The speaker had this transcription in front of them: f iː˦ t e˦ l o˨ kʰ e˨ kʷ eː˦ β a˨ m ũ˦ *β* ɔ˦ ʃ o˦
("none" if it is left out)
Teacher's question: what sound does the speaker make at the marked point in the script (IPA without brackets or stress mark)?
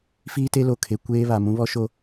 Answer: β